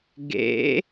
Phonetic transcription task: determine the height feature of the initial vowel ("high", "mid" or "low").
mid